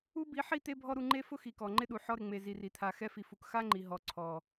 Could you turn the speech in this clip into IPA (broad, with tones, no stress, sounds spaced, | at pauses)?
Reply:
u˦ b i˨˦ ħ i˦˨ t̪ e˦ bʱ ɔ˦ ɾ u˧ ŋ͡ǃ e˦ f ʊ˦ x i˨ k ɔ˨ ŋ͡ǃ ɪ˦ ɗ u˨ ħ ɔ˧ ɾ ɪ˨ ŋ͡m e˨ z i˨ r i˨ t̪ʰ a˨ x ɛ˧ f i˨ f u˨ k x a˦ ŋ͡ǃ i˨ ɦ ɔ˨ ǀʰ ɔ˨